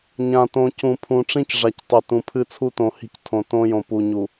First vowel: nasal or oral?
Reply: nasal